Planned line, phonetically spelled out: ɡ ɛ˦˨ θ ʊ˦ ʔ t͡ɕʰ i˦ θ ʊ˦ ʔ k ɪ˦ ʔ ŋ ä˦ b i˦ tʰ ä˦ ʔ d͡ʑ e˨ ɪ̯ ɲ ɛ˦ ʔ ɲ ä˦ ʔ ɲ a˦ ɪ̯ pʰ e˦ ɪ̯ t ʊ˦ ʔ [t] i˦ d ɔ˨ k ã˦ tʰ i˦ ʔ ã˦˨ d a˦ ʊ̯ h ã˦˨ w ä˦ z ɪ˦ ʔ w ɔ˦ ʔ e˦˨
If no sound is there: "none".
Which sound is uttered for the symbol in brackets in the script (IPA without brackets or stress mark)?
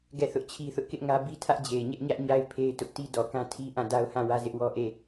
t